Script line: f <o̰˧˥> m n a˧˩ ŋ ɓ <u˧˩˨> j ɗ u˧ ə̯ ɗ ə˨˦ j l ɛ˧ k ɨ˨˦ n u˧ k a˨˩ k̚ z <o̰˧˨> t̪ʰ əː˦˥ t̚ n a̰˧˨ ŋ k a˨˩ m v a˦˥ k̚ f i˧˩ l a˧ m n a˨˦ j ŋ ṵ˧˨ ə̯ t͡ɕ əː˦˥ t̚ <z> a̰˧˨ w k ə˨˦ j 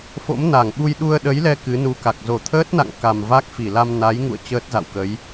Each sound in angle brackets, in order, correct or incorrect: correct, incorrect, incorrect, correct

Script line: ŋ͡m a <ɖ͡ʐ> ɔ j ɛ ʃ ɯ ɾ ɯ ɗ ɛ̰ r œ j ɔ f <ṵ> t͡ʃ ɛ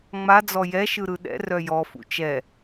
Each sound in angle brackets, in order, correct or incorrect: incorrect, correct

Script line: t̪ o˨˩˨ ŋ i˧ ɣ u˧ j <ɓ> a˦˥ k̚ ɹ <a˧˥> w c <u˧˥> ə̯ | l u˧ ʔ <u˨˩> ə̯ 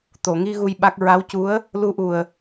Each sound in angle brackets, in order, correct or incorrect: correct, correct, correct, correct

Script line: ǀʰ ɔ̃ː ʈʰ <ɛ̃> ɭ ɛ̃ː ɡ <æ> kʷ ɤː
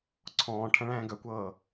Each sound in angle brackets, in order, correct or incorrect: correct, incorrect

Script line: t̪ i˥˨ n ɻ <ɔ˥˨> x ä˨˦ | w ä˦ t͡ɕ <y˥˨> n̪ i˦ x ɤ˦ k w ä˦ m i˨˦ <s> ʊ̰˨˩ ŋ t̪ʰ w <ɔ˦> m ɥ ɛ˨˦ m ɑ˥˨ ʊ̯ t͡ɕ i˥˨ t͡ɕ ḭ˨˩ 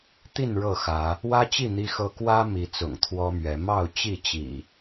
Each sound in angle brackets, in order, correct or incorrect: incorrect, incorrect, incorrect, correct

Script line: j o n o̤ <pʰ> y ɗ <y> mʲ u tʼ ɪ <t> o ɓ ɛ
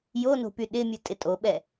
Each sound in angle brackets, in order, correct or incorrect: incorrect, incorrect, incorrect

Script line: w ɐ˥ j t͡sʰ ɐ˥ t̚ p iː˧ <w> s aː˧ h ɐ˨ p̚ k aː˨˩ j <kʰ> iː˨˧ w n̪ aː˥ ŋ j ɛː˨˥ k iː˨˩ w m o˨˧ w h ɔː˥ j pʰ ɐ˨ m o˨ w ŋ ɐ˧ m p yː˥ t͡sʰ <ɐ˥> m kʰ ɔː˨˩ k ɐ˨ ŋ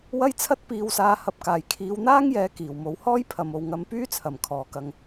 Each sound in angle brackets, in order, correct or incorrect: correct, correct, incorrect

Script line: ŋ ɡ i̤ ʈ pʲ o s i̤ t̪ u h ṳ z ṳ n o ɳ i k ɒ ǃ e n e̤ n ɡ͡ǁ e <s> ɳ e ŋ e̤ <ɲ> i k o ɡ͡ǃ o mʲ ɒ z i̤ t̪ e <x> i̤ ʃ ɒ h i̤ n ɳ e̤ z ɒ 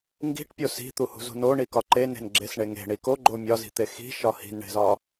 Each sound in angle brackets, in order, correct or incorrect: correct, incorrect, correct

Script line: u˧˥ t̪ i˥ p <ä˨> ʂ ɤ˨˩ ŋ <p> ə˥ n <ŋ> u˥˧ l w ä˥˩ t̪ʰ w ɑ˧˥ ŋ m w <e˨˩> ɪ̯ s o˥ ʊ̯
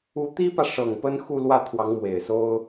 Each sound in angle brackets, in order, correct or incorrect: correct, correct, incorrect, correct

